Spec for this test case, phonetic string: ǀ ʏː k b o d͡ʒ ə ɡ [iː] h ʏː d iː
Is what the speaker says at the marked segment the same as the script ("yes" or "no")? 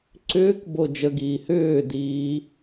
yes